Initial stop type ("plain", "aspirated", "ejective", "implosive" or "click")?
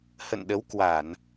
implosive